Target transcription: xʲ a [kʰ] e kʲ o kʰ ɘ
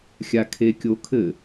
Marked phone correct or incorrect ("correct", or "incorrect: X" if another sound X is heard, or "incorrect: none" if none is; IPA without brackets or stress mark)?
correct